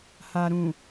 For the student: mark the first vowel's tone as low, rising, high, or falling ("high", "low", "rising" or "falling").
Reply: low